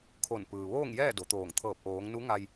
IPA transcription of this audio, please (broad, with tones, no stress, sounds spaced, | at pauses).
kʰ o˧˩ n p ɯː˩ ʋ oː˥˨ ŋ j ɛː˥˨ d o˩˧ t̪ oː˧˩ ŋ t̪ʰ ɤː˧˩ p̚ ʔ oː˩˧ ŋ n u˧˥ ŋ a˧ j